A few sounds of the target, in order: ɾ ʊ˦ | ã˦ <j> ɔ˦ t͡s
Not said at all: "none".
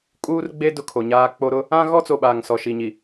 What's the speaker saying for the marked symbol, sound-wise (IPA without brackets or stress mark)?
ɣ